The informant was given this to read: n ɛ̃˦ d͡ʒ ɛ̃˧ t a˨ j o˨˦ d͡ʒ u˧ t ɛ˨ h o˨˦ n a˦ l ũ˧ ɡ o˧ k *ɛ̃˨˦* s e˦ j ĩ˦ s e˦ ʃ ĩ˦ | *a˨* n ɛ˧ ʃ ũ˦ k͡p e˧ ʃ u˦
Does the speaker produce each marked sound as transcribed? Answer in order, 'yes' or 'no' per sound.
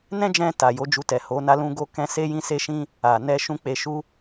no, yes

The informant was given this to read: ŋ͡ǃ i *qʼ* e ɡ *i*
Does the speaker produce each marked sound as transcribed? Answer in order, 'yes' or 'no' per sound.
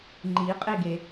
yes, no

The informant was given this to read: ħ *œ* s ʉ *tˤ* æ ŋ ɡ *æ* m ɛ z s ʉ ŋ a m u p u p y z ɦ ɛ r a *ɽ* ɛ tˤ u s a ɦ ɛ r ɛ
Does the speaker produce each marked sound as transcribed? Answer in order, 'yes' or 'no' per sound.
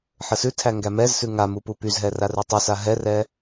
no, no, yes, no

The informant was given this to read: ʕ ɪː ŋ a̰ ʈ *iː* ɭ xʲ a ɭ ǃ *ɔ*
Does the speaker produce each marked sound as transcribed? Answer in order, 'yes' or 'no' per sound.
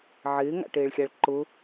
no, no

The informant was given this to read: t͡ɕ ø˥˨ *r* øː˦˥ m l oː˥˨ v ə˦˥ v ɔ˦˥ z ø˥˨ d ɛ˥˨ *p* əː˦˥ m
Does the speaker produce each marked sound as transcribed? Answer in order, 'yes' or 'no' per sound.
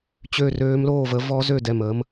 yes, no

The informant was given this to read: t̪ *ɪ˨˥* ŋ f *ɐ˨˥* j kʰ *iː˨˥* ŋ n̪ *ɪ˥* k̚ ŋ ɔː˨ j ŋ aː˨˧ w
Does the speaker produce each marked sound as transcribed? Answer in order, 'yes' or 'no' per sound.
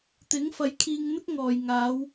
yes, yes, no, yes

